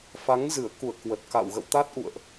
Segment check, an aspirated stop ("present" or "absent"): absent